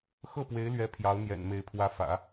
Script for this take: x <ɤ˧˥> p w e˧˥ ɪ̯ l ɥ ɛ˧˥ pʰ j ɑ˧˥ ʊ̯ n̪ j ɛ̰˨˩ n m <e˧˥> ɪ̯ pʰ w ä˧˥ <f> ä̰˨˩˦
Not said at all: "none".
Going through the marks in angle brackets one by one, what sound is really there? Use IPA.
ɤ˥˩, e˧˥, f

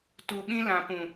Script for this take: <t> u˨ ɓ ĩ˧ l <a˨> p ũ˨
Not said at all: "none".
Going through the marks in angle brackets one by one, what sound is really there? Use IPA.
t, ã˨

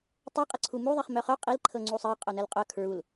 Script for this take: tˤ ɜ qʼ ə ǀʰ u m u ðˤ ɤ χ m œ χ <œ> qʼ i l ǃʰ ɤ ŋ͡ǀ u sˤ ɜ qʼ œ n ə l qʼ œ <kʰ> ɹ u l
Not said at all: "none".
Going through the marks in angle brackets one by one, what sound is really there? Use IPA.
œ, kʰ

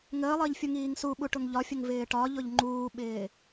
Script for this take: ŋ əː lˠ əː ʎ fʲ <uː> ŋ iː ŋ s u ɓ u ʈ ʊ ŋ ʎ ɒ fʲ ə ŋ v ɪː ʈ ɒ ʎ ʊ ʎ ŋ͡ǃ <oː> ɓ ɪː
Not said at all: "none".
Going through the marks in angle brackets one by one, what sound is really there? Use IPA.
u, uː

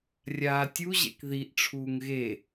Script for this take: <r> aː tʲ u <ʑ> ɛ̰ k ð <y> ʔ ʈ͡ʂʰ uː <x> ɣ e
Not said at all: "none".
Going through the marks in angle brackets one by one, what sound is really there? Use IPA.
rʲ, ʑ, i, ŋ

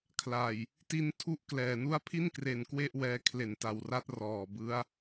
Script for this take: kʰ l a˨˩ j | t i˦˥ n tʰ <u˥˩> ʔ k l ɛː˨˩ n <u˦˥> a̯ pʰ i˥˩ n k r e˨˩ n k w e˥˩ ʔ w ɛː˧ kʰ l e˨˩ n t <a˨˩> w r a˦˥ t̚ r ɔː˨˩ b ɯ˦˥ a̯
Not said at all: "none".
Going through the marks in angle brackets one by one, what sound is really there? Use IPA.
u˥˩, u˦˥, a˨˩

